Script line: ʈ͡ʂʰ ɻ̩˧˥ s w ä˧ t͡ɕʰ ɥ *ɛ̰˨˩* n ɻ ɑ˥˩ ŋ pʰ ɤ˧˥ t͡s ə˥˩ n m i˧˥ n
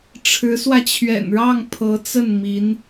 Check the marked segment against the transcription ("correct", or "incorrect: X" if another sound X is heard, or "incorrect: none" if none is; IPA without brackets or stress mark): correct